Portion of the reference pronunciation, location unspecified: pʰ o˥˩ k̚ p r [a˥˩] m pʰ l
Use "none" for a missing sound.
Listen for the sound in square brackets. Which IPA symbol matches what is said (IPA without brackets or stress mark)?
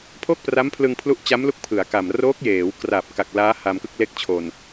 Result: a˦˥